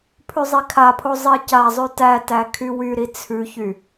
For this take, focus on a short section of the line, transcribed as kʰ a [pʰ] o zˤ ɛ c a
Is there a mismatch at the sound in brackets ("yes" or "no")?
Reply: no